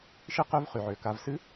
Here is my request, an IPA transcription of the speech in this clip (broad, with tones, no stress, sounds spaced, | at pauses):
ʃ ɨ˥ q ø˥ v χ y˩ ʕ ø˩ k a˧ v s ɨ˥